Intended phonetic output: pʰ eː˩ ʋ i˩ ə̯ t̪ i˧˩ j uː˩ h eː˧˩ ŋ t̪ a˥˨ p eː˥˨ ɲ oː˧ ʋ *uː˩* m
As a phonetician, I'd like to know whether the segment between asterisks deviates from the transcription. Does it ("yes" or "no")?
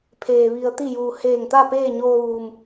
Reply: no